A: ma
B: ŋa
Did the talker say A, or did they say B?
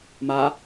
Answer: A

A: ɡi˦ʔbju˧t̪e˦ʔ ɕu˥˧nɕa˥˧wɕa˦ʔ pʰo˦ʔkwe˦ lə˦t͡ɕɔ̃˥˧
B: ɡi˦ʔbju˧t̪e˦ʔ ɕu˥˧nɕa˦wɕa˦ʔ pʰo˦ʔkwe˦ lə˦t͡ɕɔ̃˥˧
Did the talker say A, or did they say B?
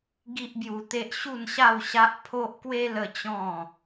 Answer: A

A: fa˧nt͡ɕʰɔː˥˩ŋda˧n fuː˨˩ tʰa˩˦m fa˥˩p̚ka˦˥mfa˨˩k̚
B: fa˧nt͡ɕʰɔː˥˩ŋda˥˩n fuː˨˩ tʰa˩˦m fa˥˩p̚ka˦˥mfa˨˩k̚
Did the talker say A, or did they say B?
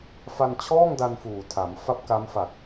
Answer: A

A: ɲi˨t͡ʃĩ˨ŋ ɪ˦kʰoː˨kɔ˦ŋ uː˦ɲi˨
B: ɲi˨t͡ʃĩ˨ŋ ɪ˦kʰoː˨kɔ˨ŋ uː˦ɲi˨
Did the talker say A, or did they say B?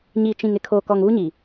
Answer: B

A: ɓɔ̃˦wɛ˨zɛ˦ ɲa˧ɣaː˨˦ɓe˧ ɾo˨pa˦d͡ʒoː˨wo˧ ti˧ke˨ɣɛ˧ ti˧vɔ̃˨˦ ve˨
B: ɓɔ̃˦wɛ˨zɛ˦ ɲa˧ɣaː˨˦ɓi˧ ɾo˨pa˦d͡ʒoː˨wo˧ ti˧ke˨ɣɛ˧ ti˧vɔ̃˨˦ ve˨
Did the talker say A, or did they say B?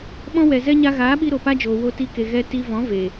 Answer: B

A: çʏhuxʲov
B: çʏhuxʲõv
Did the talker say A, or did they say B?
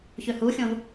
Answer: B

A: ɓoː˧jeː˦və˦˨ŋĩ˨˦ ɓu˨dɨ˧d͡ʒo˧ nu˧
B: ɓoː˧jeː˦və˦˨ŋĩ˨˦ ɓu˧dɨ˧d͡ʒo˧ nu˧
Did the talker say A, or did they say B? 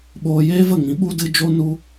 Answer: B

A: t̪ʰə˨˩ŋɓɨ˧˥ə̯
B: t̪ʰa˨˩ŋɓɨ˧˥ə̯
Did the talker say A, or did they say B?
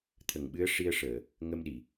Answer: A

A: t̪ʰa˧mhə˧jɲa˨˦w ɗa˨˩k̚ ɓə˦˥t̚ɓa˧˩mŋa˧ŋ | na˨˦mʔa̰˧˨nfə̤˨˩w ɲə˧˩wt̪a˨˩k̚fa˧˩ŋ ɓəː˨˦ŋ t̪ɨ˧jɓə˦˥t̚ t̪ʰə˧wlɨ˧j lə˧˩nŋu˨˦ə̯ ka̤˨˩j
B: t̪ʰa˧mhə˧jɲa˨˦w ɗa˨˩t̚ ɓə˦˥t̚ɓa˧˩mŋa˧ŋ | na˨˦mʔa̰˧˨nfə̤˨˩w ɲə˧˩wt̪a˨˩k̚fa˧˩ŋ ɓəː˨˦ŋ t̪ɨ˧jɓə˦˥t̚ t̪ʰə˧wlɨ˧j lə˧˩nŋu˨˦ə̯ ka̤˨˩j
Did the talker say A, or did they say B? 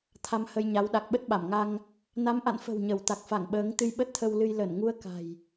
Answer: A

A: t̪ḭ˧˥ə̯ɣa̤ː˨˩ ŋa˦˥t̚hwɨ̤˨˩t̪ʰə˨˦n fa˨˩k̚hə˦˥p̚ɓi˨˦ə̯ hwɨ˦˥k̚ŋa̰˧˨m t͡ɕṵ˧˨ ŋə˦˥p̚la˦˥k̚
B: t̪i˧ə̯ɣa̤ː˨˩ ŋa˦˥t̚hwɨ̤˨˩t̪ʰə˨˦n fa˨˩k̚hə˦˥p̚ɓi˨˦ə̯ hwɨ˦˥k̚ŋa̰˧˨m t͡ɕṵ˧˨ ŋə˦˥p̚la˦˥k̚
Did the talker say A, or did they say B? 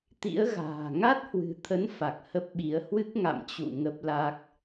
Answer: A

